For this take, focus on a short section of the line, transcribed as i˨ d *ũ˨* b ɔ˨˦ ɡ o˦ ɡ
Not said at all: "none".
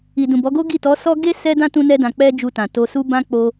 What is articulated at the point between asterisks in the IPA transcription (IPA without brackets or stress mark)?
ũ˨